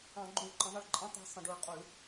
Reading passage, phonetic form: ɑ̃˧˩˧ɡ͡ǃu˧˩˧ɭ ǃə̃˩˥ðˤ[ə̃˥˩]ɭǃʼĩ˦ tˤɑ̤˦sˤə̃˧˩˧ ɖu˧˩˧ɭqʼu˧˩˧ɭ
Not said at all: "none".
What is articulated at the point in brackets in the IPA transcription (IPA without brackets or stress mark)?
ə˥˩